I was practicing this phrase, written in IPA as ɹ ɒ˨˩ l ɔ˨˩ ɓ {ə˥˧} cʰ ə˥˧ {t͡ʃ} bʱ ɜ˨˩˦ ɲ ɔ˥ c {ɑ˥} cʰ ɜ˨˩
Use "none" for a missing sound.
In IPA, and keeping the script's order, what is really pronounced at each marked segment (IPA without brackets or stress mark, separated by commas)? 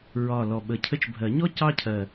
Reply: ə˨˩, t͡ʃ, ɑ˥